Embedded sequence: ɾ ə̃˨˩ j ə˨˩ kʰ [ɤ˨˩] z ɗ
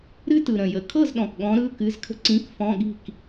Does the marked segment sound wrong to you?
yes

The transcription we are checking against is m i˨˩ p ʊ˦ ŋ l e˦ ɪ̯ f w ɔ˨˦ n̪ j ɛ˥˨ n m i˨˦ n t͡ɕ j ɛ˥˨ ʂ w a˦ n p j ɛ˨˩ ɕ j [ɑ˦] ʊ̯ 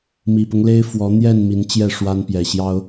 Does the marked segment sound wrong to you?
no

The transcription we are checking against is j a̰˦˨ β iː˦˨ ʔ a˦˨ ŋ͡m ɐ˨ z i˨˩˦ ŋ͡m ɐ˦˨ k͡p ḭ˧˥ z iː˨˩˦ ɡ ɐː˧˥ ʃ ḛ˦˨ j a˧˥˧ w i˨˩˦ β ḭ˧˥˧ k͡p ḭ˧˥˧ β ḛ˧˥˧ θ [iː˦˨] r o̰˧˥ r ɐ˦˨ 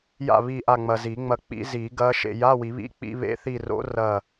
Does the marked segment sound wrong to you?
yes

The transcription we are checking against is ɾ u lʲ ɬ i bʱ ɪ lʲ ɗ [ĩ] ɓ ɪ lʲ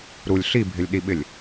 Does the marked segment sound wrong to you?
yes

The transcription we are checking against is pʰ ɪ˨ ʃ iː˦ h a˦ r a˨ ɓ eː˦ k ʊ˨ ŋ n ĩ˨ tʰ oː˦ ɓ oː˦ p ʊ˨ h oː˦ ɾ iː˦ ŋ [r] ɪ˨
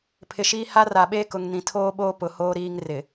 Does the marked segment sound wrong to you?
no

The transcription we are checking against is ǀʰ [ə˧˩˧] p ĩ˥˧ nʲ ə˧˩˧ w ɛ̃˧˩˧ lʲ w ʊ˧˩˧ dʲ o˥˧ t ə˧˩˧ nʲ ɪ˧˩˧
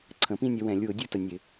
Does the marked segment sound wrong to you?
yes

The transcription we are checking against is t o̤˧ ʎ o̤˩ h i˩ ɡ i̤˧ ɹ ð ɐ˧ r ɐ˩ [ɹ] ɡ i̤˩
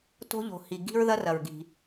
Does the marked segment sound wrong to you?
no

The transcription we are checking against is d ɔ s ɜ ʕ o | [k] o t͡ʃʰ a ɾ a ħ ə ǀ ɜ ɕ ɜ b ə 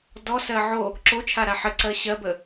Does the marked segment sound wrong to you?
yes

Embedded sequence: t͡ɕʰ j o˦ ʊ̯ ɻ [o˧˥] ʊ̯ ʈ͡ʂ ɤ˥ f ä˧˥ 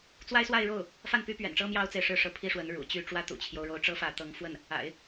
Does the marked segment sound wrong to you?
no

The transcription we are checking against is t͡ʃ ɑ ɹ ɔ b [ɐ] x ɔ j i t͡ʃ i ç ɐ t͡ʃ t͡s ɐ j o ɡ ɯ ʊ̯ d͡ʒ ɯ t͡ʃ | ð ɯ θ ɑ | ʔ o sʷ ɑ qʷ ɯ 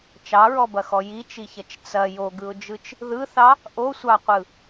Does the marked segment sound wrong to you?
no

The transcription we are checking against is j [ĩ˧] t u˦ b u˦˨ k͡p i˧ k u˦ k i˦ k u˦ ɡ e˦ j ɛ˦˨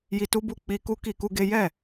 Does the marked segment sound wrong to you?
yes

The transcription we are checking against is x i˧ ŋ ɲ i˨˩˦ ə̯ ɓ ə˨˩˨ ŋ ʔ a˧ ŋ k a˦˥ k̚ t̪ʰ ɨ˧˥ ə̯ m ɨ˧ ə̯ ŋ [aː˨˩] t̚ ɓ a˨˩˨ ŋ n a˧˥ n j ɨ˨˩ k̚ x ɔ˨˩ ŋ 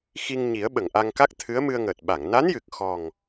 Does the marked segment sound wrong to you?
yes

